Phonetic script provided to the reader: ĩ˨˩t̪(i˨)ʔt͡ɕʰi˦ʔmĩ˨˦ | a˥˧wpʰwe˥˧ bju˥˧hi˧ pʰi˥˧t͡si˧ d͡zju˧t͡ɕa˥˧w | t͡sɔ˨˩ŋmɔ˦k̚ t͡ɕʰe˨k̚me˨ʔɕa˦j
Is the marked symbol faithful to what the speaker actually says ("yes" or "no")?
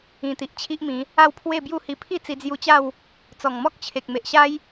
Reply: yes